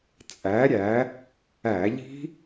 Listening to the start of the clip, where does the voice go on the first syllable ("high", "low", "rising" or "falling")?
rising